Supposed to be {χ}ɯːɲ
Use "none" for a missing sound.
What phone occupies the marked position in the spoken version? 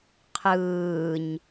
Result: qʰ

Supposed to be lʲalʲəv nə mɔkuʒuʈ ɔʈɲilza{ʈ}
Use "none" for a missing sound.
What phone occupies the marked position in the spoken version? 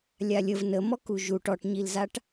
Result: ʈ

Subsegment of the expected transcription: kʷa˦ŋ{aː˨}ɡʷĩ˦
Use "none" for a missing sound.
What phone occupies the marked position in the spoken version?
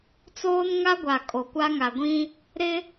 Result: a˨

